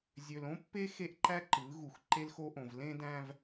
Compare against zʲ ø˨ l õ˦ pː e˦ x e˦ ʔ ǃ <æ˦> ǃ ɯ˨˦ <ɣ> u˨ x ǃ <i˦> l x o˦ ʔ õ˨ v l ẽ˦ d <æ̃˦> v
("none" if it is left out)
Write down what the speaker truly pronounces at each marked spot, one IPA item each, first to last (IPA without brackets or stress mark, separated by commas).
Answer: æ˦, ɣ, e˦, æ̃˦